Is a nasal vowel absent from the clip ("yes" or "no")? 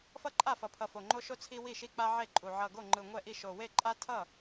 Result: yes